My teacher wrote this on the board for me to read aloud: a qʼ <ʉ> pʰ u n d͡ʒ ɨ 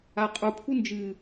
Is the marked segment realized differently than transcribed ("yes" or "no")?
yes